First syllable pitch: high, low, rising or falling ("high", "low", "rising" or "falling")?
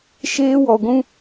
high